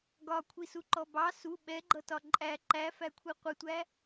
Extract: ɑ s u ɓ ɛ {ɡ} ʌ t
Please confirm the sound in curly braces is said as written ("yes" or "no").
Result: no